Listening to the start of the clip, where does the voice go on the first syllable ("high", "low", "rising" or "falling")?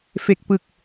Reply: low